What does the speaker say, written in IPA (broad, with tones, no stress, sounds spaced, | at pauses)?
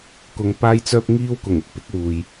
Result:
k ʊ˧ ŋ p aː˥ j t͡s œː˥ p̚ ŋ iː˥ w k ʊ˨˩ ŋ ɪ˥ k̚ p ɪ˨˥ k̚ w uː˨ j